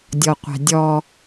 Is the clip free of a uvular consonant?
no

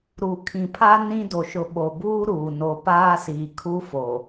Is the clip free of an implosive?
no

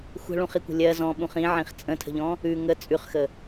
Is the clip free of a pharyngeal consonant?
no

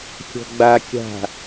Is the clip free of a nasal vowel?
yes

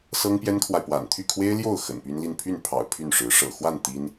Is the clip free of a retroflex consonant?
no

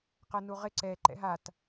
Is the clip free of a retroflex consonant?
yes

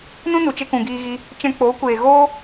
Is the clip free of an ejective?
yes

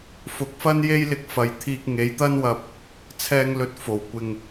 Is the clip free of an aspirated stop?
no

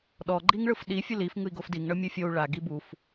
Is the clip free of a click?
no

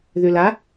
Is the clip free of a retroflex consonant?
yes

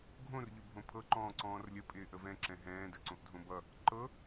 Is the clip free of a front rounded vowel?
yes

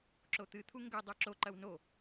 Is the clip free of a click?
no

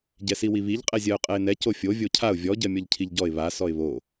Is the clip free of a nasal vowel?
yes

